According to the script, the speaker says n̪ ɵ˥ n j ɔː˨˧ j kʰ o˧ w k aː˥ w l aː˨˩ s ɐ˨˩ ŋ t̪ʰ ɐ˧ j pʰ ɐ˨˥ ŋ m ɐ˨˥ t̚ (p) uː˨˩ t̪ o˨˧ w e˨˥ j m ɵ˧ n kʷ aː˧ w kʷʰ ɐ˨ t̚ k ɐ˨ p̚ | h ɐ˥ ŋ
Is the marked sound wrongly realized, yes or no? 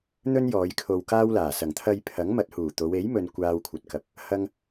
yes